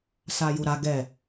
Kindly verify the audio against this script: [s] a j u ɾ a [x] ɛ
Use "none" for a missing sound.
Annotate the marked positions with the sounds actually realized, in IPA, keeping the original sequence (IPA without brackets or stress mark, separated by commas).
s, ɡ